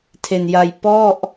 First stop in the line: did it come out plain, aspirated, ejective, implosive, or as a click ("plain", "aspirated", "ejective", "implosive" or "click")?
aspirated